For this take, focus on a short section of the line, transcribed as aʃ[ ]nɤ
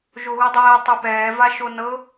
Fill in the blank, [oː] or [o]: o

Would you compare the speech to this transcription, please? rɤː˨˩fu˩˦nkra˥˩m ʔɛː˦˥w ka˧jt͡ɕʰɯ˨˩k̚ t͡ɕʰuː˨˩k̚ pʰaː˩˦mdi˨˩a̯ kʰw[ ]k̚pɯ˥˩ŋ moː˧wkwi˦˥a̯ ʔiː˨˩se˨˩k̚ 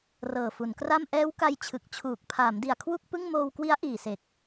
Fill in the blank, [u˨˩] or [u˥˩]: u˥˩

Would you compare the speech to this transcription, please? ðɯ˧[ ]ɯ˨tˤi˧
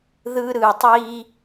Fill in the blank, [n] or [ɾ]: ɾ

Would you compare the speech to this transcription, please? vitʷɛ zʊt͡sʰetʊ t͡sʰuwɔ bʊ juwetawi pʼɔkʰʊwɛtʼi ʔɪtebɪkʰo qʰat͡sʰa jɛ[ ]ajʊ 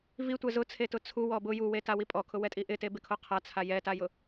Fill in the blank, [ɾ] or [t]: t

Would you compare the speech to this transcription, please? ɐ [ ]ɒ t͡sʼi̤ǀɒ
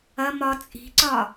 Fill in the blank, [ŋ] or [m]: m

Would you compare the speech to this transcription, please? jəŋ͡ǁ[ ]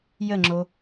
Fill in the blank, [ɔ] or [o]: o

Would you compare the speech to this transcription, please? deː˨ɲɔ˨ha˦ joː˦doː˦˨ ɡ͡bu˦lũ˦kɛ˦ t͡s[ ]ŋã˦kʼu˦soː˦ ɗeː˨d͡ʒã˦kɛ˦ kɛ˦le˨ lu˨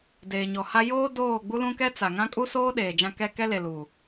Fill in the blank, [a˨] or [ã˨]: a˨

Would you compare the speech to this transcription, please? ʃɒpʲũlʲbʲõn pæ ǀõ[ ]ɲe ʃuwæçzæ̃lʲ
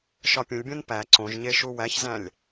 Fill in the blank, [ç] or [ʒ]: ʒ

